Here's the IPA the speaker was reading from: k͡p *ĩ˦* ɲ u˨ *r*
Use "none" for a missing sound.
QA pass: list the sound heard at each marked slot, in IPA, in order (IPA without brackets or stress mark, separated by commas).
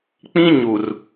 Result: ĩ˦, r